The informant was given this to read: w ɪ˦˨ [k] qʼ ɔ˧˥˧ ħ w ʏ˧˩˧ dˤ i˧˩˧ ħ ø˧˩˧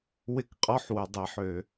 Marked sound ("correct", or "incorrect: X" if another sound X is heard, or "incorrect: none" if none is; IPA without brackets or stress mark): correct